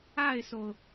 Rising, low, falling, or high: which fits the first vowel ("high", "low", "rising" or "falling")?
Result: falling